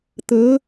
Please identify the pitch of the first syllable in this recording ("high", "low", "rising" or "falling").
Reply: rising